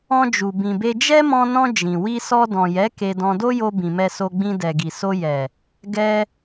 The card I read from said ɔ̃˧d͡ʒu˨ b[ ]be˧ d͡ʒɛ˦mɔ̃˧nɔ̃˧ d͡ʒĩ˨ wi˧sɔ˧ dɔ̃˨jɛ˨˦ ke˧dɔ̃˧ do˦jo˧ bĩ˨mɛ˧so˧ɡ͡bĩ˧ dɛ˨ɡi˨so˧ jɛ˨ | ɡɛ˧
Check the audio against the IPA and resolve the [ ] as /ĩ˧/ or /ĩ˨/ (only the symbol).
ĩ˨